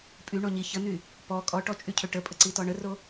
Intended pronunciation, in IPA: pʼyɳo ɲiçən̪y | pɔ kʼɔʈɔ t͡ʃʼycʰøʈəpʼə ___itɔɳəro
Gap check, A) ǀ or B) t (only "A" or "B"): A